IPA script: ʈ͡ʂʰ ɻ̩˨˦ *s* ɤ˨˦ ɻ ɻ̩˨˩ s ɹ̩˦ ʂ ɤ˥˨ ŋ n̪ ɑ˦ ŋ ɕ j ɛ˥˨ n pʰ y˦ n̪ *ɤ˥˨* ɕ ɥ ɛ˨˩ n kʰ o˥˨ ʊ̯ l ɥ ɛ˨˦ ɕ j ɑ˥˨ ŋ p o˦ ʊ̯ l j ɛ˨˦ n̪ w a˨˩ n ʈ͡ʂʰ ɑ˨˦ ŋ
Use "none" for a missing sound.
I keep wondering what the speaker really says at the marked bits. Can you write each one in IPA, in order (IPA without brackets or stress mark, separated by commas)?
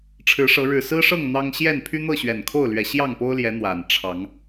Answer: ʂ, ɤ˥˨